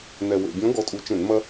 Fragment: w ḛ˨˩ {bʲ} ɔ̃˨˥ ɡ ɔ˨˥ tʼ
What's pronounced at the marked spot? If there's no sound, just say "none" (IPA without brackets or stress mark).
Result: bʲ